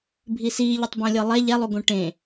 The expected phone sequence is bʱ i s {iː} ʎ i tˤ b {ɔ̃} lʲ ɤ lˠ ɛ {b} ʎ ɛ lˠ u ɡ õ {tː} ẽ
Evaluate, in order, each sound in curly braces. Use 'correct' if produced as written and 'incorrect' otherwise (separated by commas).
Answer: correct, incorrect, incorrect, incorrect